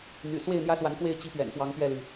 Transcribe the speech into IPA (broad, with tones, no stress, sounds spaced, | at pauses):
n̪ y̰˨˩ s w e˥˨ ɪ̯ n̪ j ä˦ s w a˨˦ n k w e˥˨ ɪ̯ t͡ɕ i˦ p ɥ ɛ̰˨˩ n p w ɑ˨˦ ŋ p ɥ ɛ˥˨ l y˩